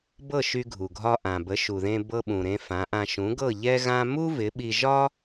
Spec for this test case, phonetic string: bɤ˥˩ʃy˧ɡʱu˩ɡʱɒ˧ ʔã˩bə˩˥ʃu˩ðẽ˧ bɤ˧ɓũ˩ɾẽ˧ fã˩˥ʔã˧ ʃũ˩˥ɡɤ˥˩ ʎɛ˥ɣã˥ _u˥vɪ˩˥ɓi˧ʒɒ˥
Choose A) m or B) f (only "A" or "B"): A